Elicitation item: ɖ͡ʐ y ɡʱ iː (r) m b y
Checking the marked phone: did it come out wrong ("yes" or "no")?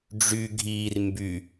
no